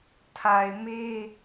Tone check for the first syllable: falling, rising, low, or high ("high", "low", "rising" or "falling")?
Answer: low